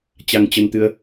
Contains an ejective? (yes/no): no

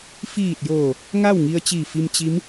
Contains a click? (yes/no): no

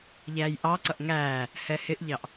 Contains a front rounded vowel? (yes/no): no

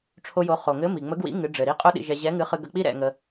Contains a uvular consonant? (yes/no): yes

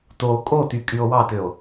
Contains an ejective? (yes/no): yes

